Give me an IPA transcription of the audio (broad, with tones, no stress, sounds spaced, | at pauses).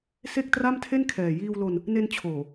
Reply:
s e˥˩ k̚ t r a˥˩ m tʰ e˥˩ n kʰ ɛː˨˩ j iː˧ w l o˧ n | n e˧ n t͡ɕʰ oː˨˩